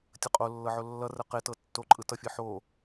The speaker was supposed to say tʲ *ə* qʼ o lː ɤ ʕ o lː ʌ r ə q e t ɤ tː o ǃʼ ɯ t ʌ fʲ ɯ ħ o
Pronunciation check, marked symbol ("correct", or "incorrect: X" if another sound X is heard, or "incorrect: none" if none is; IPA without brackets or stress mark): correct